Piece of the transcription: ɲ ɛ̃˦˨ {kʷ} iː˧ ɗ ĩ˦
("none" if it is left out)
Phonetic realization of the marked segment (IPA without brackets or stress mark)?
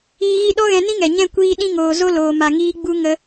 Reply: kʷ